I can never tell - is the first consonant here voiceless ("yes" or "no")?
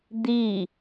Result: no